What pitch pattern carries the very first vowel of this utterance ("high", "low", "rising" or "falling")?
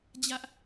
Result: high